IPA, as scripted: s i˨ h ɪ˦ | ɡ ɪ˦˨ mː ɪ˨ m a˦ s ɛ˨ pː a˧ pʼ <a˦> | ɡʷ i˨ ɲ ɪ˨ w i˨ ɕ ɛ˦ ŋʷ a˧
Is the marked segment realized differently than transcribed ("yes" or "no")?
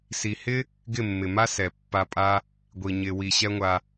no